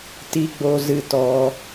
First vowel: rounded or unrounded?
unrounded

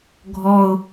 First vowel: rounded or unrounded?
rounded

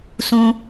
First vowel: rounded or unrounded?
rounded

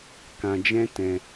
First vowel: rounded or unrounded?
unrounded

